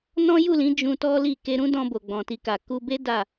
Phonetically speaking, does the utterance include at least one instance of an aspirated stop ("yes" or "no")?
no